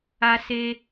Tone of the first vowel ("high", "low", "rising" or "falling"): high